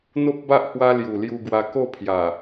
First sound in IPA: n̪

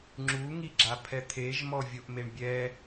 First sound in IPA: ŋ͡ǁ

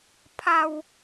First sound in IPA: pʰ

